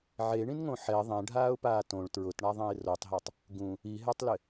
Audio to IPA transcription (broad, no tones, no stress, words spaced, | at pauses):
ʕeɳĩnŋõ ħɛ ðˤɛ̃ɖʱaːʊ̯paː tõɭ tɹʊtɳaðˤɛ̃ɪ̯ rotˤɦatˤ | ɡũ | iɦɛtˤlɪ